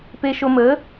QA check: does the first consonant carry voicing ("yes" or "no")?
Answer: no